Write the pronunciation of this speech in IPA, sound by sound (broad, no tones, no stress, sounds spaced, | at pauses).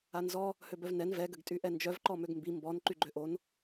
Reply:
a n z ɔ | h ø b œ v n ɛ n v ɛ ɡ ə ɡ tʼ y ʔ ɛ n d͡ʒ œ v ǃ ɔ m ø ɡ m b i m b ɔ n ǃ y ɡ͡ǃ ø ʔ o n